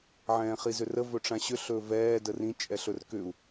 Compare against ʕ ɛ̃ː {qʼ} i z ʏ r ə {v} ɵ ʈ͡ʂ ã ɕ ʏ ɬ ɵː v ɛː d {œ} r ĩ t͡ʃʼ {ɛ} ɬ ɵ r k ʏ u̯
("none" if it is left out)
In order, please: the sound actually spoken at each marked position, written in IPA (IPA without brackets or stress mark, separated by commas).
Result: χ, v, ə, ɛ